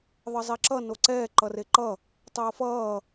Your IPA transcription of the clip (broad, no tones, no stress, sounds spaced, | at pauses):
ðˤ ʌ zˤ i ǁ ʌ n o ǀ ɛː ǃ ʌ r e ǃ ʌ | tˤ ʌː f ʌː